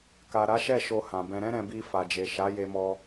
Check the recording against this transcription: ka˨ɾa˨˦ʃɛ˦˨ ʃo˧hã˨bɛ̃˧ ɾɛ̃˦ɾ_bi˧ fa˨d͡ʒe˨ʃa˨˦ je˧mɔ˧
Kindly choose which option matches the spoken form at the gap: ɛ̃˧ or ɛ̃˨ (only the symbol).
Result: ɛ̃˧